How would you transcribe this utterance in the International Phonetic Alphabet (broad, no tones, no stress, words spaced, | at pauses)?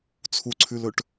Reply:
t͡sʰuǀʰʉlɵʈ